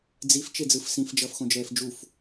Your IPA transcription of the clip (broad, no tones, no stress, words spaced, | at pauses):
d͡zif t͡ʃed͡zɯfsĩf d͡ʒʌːfxõd͡ʒɛːfd͡ʒuf